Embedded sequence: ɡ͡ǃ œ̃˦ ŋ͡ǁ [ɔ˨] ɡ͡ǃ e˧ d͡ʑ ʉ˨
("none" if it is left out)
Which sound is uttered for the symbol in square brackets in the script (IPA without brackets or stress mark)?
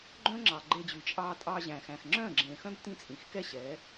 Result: ɑ˨